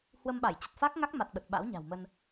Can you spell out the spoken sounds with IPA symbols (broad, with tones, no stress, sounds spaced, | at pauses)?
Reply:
h w ə˧ m ɓ a˧˩ j t͡ɕ ə˨˩ t̚ f a˦˥ k̚ ŋ a˦˥ k̚ m a˨˩ t̚ ɓ ə˨˩ t̚ ɓ a̰˧˥ w ɲ a̤˨˩ w m ə˧ n